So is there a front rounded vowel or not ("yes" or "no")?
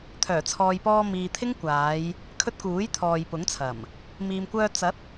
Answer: yes